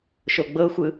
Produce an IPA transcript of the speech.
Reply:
ʃ o ɡ͡b ɤ xʷ ɯ

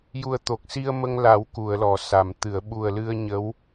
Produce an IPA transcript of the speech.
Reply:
j u˨˩ ə̯ t̪ o˨˩ k̚ s i˧ ə̯ m ə˧ ŋ l a˨˩˦ w k u˨˩˨ ə̯ l ɔ˨˩˨ s a˨˩˨ m t̪ ɨ˨˩˨ ə̯ ɓ u˨˩ ə̯ l ɨ˧ ə̯ ɲ ə˧˥ w

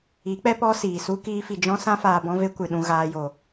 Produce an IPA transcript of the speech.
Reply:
i˨˦ k͡p ɛ˦ p ɔ˦ s iː˨ s u˦ k iː˦ f i˧ d͡ʒ ɔ̃˦ s ã˦ f aː˧ b ɔ̃˦ v e˦ kʷ ɨ˨ ɗ ũ˧ ɣ aː˧ j o˨

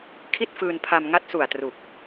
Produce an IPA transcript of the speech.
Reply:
kʰ i˥˩ t̚ f ɯː˧ n pʰ a˧ m ŋ a˦˥ t̚ s u˨˩ a̯ t r u˨˩ k̚

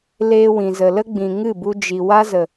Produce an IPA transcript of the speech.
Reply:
l eː˧ w ĩ˨ z ə˨ l ə˦ ɡ͡b ĩ˨ ŋ ɨ˦˨ b u˧ d͡ʒ i˨ w a˦ z ə˨

